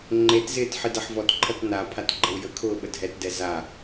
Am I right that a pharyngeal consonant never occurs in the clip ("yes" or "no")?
no